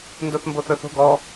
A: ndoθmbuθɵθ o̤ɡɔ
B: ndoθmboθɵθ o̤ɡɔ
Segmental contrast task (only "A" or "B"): B